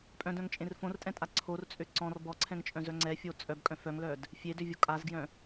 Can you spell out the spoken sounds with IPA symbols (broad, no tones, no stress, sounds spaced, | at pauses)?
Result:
pʼ œ̃ d œ̃ ŋ t͡ʃʼ ẽ r f õ r tʼ ɛ̃ tʼ a ǀʰ o r t͡sʼ ø ǀ ɔ̃ r b ɔ ǀʰ ɛ̃ ŋ t͡ʃʼ œ̃ z œ ŋ͡ǀ ɛ fʲ o t͡sʼ œ b kʼ œ̃ f œ ŋ l œ d | fʲ e d ø vʲ o kʼ a z ɡ j œ̃